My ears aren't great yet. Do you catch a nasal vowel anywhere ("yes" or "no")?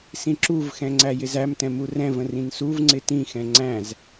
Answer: yes